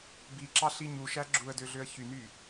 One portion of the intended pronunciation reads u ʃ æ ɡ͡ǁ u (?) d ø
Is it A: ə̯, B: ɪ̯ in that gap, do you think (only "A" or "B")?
A